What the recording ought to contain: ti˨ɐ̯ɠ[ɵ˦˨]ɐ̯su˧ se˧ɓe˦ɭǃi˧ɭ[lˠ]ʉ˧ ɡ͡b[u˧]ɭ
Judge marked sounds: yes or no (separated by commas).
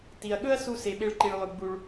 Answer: no, yes, yes